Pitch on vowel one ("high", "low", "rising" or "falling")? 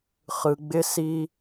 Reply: low